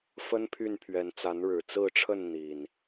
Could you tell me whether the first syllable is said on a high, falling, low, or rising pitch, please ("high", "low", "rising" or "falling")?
high